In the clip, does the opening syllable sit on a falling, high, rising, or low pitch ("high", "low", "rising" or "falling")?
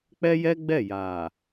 high